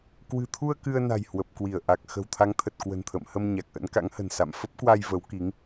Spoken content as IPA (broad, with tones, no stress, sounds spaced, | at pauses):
k w ɨ̤˨˩ t̪ʰ u˧ ə̯ k ɨ˧ ə̯ n a̤˨˩ j h w ə˨˩ p̚ k w i˧˩ ə̯ ʔ a˨˩ k̚ x ə̤˨˩ w t̪ʰ a˨˦ ŋ t̪ʰ ə˨˩ t̚ k w ə̤˨˩ n t̪ʰ ə̰ː˧˨ m h ə˧ m ɲ a˨˩ k̚ ʔ ə̰˧˥ n k a̰˧˥ ŋ h ə̤˨˩ n s a̰˧˨ m f ə˦˥ p̚ k w a˧ j v ə˨˦ w k i˨˦ ŋ